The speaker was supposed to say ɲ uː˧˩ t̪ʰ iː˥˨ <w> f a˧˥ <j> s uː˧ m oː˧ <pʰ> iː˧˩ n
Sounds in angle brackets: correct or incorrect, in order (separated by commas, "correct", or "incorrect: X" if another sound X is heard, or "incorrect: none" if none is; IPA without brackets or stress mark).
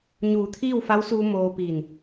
correct, incorrect: w, incorrect: p